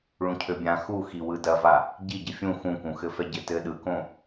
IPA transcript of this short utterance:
ɭ ũ cʰ ø bʲ ã x u x i w ɯ d ɐ v a | ɟ i ɟ ɘ fʲ ũ x ũ k ũ x ɘ f ɛ ɟ ɘ t ɘ ɗ ɯ k õ

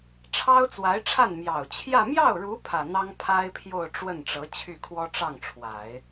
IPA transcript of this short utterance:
ʈ͡ʂʰ ɑ˥ ʊ̯ t͡s w a˧˥ ɪ̯ ʈ͡ʂʰ a˥˩ n m j ɑ˨˩ ʊ̯ t͡ɕʰ j ä˥˧ m j ɑ˥˩ ʊ̯ ɻ u˧˥ pʰ ä˨˩ n̪ ɑ˥ ŋ pʰ a˥ ɪ̯ pʰ j o˥˧ ʊ̯ ʈ͡ʂ w ə˥˩ n ʈ͡ʂ ɤ˧˥ t͡ɕʰ y˥˩ kʰ w ɔ˥ ʈ͡ʂ ɑ˥˩ ŋ ʈ͡ʂʰ w a˨˩˦ ɪ̯

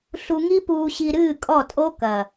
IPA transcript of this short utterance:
ɬ u˧ ŋ i˦ p uː˧ ɕ i˧ ɾ ɨː˦˨ kʼ ɔ˦˨ tʼ o˦ k ɐ˨

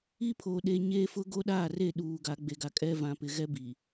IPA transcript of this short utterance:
i˦ pʰ oː˨ ɗ e˨ ɲ eː˦ f ʊ˦ ɡ o˦ ɗ aː˦˨ r e˦˨ ɗ uː˨ ɡ a˨˦ ɡ͡b e˨ ɡ a˨ kʼ ɛ˦ v ã˨ p ɪ˨ ɣ ɛ˦ b i˨

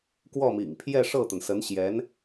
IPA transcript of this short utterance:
k w ɔ˥˩ m ḭ˨˩ ŋ pʰ j ɛ˥˧ ʂ ɤ˥˩ t̪ ə˩ n s ə˧˥ n ɕ j ɛ˧˥ n

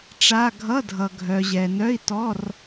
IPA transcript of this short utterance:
ʈ͡ʂ a˧˥˧ ɡʱ ʌ˧˥˧ dʱ ʌ˨ ɡʱ œ˨ ʑ ɛ˨ n œ˧˥˧ i̯ t ɔ˧˥˧ r

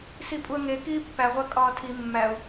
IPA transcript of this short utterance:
s i pʼ u ə̯ ŋ e k iː pː æ ʁʷ æ kʼ ɒː tʰ i mː æ ʊ̯

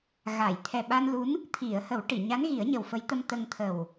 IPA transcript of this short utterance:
ɣ a˨˩˨ j t̪ʰ ɛ˨˩ ɓ a˧ n l u˧˥ n | t̪ʰ i˨˩˨ ə̯ h ə˨˩˦ w ʈ i˨˩˨ ɲ a˧˥ n ɣ i˨˩˦ ə̯ ɲ ə˨˩ w f ə˧˥ j t̪ ə˧ m t̪ ə˧ ŋ t̪ʰ ə˨˩ w

